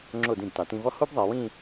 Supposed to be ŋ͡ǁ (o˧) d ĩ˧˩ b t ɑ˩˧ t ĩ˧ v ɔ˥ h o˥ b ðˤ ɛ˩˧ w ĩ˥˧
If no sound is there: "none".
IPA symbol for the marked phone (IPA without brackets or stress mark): o˧˩